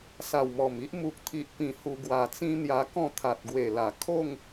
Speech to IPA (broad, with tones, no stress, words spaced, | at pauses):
sa˨˩wmɔ˨˩mi˦ʔ mu˨k̚t̪ʰi˨ʔpĩ˨˩ hu˧ ɡwa˨˩t͡sĩ˦n̪ja˧kɔ̃˥˧ t̪ʰa˨t̚ɡwe˨˩la˨˩ kʰo˥˧ŋ